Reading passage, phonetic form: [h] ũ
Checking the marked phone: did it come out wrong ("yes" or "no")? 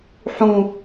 yes